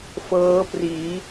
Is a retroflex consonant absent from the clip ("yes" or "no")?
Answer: yes